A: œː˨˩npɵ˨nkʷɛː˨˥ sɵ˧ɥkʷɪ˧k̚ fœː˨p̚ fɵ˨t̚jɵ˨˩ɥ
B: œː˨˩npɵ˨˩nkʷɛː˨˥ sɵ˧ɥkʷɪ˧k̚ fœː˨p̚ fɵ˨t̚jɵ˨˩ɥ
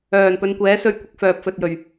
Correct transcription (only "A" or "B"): A